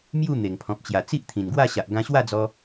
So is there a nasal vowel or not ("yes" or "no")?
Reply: yes